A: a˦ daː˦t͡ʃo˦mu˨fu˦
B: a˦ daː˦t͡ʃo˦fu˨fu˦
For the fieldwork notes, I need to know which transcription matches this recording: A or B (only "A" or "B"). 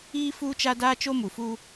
A